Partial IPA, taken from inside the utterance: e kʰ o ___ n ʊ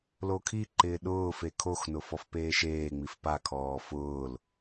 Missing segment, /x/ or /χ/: x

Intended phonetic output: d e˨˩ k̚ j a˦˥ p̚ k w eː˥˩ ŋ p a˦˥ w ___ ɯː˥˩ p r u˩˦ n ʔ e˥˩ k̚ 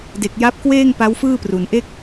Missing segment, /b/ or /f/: f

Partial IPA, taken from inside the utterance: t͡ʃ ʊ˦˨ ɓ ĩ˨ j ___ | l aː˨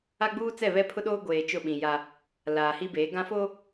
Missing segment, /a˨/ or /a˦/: a˦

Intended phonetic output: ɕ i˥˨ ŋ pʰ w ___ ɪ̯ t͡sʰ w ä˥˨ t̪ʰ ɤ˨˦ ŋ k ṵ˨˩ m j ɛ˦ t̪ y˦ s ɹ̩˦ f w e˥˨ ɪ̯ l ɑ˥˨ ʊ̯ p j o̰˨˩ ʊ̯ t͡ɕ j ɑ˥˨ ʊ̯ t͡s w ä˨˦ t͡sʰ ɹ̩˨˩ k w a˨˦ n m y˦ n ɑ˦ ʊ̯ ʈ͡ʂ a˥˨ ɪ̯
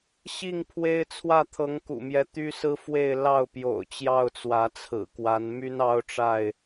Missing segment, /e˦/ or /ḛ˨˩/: e˦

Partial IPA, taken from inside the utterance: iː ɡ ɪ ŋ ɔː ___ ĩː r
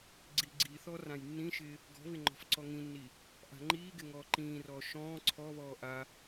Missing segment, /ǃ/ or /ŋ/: ǃ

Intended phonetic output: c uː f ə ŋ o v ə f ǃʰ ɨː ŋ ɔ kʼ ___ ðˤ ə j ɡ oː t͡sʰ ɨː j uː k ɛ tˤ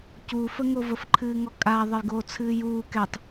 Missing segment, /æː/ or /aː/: aː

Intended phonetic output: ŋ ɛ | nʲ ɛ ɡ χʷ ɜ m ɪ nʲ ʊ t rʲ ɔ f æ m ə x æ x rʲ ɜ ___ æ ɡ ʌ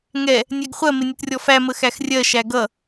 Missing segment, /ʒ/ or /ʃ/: ʃ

